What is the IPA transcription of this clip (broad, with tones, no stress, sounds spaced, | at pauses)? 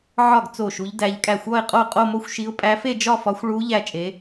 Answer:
ʕ ɒ˥˩ ɡ t͡s o˥˩ ʃ u˧˥ ʎ d æ˧˥ ʎ kʼ æ˥˩ xʷ ɒ˥˧ ɪ̯ qʼ o˥˩ qʼ o˥˧ m o˥˧ xʷ ʃ i˧˥ ʊ̯ pʼ æ˧˥ f e˥˧ d͡ʒ ɒ˥˧ f ɒ˧˥ xʷ ɭ u˧˥ ʎ æ˥˧ t͡ʃʼ e˧˥